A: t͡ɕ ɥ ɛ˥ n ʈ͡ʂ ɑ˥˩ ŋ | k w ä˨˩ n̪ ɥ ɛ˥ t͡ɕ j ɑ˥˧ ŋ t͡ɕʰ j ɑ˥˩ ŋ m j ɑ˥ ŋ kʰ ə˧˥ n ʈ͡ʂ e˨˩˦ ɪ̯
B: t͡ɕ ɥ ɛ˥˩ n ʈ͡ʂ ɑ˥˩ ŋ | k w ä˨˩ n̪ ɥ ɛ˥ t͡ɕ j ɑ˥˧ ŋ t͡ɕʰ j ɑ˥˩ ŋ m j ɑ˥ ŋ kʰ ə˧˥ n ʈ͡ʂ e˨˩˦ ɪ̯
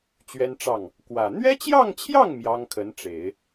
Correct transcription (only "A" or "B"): A